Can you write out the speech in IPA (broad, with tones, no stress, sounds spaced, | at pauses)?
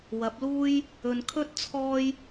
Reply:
w ɐ˨˥ p̚ l uː˥ j | ɵ˨ n kʰ ɵ˥ t̚ t͡sʰ ɔː˥ j